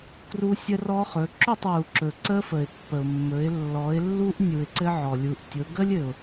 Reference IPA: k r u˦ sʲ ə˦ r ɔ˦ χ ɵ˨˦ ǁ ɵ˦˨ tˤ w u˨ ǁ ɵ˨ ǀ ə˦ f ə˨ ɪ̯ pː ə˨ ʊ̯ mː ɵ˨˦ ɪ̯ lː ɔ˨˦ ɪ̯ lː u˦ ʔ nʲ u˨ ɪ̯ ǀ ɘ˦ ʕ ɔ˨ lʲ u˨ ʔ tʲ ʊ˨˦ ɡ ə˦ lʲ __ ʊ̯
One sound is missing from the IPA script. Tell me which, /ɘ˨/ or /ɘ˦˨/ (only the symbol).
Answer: ɘ˨